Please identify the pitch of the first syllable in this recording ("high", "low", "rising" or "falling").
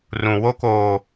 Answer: low